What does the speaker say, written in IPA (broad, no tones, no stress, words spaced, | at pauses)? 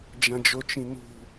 d͡ʒãd͡ʒot͡ʃĩnṳ